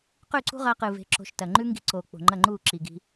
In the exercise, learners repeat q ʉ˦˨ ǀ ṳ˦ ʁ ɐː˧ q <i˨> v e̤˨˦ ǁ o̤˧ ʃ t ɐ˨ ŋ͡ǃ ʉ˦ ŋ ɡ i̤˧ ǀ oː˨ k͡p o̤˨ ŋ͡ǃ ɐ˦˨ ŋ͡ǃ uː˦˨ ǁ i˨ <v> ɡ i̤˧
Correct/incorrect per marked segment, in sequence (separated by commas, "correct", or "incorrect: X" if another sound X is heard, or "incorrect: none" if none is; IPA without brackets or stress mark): incorrect: ɨ˨, incorrect: none